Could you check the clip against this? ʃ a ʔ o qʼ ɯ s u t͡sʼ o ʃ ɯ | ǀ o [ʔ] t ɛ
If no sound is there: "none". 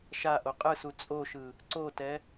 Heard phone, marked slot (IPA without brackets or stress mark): none